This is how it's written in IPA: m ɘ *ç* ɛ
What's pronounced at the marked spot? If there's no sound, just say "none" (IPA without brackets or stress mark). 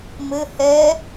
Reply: h